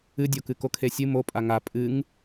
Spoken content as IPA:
ɨ dʲ o k ɨ k o kʰ e sʲ ɨ m o pʼ a ŋ a pʼ ɨ ŋ

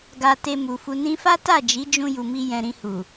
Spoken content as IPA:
ɡ a˧ t e˧ m u˨ f u˧ n ĩ˧ f a˦ t a˦˨ d͡ʒ i˨˦ d͡ʒ ũ˧ j u˨ m i˧ j ɛ̃˨ ɾ ĩ˧ h u˨

